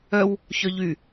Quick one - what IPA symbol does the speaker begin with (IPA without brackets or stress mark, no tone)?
œ